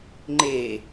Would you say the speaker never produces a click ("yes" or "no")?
no